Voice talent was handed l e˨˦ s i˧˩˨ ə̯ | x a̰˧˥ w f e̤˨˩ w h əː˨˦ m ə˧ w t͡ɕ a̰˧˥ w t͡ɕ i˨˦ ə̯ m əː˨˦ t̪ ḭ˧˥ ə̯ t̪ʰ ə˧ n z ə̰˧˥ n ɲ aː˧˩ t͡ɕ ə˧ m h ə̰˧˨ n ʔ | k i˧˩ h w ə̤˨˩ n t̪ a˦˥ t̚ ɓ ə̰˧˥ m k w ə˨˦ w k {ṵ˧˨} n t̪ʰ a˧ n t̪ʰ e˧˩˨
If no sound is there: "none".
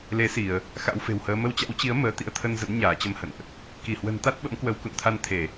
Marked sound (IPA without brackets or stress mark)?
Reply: ṵ˧˨